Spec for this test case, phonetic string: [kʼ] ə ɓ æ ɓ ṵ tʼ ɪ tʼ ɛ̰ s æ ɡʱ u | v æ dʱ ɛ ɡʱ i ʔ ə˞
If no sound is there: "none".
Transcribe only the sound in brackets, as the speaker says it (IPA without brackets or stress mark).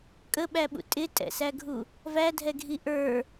kʼ